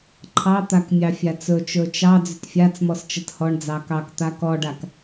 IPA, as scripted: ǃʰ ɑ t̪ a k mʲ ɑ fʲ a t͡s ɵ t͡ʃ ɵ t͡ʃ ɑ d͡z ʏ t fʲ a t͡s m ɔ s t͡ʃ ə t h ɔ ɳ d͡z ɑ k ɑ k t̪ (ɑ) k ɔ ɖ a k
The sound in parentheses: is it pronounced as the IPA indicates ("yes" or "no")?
no